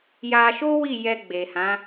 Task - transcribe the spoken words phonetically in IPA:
j a˧ ʃ o˦ w i˦˨ j ɛ˧ ɡ͡b e˨ h ã˨˦

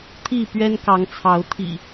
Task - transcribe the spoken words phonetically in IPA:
t̪ʰ i˥˨ p ɥ ɛ˦ n k ɑ˨˦ ŋ t͡sʰ ɑ˨˦ ʊ̯ t̪ʰ ḭ˨˩

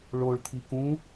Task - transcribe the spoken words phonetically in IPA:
ɭ o ɭ t̪ʰ i k ũ

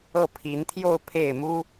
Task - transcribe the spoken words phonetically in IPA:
ɤ˥˩ pʰ i˧˥ n t̪ʰ j o˥˧ ʊ̯ pʰ e˥˩ ɪ̯ m u˥

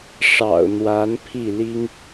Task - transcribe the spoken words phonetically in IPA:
ʂ ɑ̰˨˩ ʊ̯ n̪ w a˧˥ n pʰ i˥˩ l i˥ ŋ

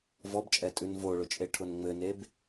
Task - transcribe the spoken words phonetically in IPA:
v ɔ b t͡ʃʼ ɛ tʼ ʉ n v o ɭ ʊ t͡ʃʼ e ʈʰ ʊ n ŋ͡m ɘ n e b

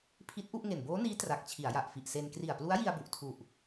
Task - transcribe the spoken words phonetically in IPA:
pʰ i˦˥ t̚ ʔ u˥˩ ʔ ŋ e˨˩ n b oː˦˥ n iː˦˥ t r a˨˩ k̚ t͡ɕʰ i˩˦ a̯ j a˨˩ ʔ f i˨˩ ʔ s e˧ n k r i˨˩ a̯ p l u˦˥ a̯ j i˧ a̯ b u˨˩ ʔ tʰ u˨˩ ʔ

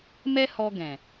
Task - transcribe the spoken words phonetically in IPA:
m ɛ˦ h ɔ˧ ɡ ɛ̃˨

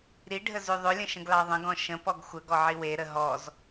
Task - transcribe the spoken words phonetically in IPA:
ɾ i ɖʱ ə z ʉ ðˤ ʏ lʲ ə̃ ʃ ə̃ ɡ l ɑ ðˤ ə̃ ɡ ɔ̃ ʃ ə̃ p ɔ ɡ xʷ ə ɡ ɔ ʕ i w e ɾ ə ɦ ɔ z

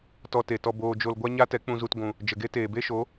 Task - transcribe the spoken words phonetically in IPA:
t ɔ˧ t e˨ t ɔ˧ b oː˧ d͡ʒ o˧ l ɡʷ a˦ ɲ a˦ t ɛ˨˦ k͡p ũ˧ z u˧ t ɡʷ ũ˨ | d͡ʒ ə˨ ɡ e˦ t eː˨ b e˦ ʃ o˨˦

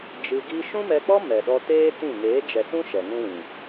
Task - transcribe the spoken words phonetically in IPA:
d͡ʒ ɨ˧ ɡ i˦ ʃ ũ˦ m ɛ˧ k͡p ɔ˦ m ɛ˨ ɗ ɔ˧ t eː˦ t ĩ˦˨ ŋ eː˨˦ d͡ʒ ɛ˨ s ũ˦ ʃ ɛ˨ ŋ ũ˦ w ĩ˨

